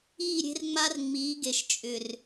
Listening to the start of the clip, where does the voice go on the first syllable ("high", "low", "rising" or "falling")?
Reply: falling